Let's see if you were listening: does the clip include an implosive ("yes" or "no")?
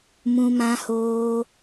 no